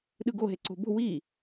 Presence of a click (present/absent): present